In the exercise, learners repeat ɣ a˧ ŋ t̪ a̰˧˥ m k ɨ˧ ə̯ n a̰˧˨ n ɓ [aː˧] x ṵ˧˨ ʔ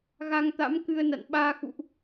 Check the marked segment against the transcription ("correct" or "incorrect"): correct